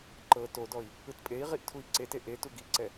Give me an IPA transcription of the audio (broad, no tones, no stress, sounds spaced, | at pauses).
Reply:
ǃ ɤ t o d ɔ i̯ | ɯ t pʼ e i̯ ʁ i ʔ tʰ u i̯ ǀ e t e ʔ e t u ɡ i ǀ ɛ